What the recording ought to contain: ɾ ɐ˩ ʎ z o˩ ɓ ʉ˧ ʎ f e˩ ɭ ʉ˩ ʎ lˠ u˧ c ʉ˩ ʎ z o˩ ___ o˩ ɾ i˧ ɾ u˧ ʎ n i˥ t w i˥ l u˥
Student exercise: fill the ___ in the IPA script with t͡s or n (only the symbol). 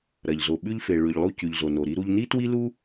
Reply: n